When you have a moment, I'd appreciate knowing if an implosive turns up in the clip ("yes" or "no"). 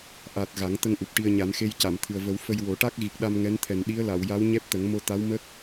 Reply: yes